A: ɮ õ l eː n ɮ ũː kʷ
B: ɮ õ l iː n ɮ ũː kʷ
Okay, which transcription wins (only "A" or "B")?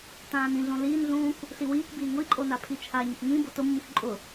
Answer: B